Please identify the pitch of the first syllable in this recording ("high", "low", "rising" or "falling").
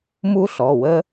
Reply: high